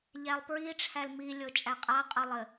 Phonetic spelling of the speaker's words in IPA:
ʎ æ lˠ p ɹ i ʈ͡ʂʰ æ l m i lʲ o t͡ʃʼ æ qʼ a qʼ ɤ lˠ ɘ

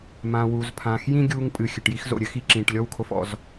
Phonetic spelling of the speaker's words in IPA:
m ã˩ w u˩ z pʰ ã˩ x j ĩ˥ ɡʲ uː˧ ŋ pʼ ɨ˩ xʲ ɘ˩ ʈ j i˧ x z o̰˩ ɾʲ ɘ˥ x i˧ ǁ ĩː˩ ʈ lʲ ɔ˥ w kʰ o˧ f ɔ̰˩ z

